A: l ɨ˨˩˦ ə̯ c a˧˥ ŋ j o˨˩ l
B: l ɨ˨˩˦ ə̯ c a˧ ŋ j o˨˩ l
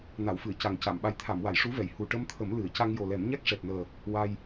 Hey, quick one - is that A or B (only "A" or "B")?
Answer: B